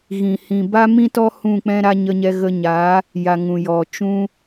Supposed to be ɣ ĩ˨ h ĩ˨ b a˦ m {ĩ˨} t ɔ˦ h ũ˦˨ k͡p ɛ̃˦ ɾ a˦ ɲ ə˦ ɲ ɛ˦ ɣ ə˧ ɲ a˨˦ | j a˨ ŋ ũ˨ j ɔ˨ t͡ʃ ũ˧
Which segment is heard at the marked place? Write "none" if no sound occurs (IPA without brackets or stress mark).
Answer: ĩ˦